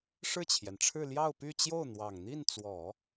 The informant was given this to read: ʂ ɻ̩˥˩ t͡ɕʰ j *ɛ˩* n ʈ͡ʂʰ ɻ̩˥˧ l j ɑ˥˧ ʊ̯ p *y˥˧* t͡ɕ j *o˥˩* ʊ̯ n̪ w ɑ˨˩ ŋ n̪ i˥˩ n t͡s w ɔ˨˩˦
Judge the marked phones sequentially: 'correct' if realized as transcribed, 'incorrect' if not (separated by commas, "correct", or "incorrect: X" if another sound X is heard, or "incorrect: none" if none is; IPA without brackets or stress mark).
correct, correct, correct